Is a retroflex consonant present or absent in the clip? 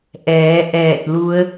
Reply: absent